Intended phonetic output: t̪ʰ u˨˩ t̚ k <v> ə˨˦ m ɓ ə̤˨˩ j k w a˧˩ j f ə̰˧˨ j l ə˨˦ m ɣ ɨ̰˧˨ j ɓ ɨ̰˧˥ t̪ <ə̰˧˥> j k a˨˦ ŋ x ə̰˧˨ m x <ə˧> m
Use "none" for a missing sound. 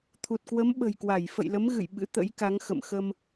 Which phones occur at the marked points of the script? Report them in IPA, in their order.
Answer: w, ə̰˧˥, ə˧

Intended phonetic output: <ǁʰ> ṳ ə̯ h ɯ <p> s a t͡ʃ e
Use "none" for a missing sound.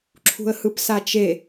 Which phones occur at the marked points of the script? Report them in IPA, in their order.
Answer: ǁʰ, p

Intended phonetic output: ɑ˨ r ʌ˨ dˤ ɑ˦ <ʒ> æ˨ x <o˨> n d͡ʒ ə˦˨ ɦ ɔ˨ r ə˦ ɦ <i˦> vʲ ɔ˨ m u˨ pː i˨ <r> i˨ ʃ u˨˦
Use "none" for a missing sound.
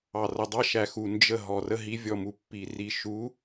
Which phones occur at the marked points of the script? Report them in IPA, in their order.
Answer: ʃ, u˨, i˨˦, r

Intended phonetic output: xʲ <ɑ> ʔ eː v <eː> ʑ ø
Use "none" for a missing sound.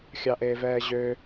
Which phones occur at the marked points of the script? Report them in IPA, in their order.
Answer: ɑ, ɛː

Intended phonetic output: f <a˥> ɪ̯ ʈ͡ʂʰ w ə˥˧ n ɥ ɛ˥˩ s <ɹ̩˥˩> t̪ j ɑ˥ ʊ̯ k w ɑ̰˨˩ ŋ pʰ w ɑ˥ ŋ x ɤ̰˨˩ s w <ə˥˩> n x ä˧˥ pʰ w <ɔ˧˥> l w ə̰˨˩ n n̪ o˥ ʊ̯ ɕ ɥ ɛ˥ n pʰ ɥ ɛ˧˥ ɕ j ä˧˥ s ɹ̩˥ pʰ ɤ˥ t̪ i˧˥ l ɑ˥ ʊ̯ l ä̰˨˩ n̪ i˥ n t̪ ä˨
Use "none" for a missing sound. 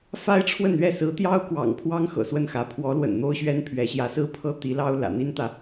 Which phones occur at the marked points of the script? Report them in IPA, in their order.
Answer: a˥, ɹ̩˧˥, ə˥˩, ɔ˧˥

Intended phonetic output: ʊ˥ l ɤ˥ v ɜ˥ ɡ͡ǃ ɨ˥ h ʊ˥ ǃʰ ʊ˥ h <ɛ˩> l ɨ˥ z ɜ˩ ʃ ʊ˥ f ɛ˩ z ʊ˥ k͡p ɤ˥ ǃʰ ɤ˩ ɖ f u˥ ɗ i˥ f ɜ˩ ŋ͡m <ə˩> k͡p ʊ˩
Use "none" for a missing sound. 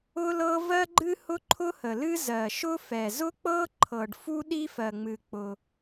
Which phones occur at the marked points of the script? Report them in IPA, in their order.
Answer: ə˩, ɨ˩

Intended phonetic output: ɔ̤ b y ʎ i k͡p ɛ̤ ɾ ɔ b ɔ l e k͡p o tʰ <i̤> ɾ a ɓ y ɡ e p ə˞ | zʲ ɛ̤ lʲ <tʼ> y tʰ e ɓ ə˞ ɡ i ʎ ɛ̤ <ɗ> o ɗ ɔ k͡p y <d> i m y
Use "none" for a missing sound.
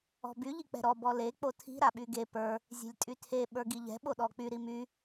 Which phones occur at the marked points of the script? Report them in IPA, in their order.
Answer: i̤, tʼ, ɓ, ɾ

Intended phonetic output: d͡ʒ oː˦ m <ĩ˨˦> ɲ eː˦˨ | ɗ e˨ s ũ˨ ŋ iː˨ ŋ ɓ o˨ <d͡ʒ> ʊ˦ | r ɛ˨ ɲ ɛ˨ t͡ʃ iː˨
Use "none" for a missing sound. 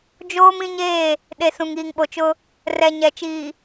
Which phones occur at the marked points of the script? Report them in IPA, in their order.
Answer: ĩ˦, t͡ʃ

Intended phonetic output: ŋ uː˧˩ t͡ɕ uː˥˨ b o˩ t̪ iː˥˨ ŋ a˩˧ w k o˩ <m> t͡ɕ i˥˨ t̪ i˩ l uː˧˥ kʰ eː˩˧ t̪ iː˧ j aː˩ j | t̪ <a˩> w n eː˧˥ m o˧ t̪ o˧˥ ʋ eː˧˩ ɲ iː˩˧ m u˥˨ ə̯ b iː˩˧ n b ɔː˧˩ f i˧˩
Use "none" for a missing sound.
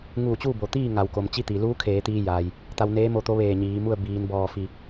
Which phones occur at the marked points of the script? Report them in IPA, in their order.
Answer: m, a˧

